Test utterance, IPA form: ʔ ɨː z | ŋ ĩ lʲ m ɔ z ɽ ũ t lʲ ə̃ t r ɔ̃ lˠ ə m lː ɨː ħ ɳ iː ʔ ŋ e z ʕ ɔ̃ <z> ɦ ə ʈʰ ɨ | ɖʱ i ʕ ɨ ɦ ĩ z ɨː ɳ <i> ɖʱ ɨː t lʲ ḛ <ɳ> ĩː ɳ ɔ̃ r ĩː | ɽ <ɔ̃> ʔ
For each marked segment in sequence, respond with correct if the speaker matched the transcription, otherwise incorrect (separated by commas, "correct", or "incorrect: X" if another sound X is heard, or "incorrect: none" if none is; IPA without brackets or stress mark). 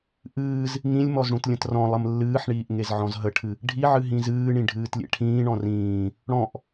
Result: correct, incorrect: ĩ, incorrect: ʈʰ, correct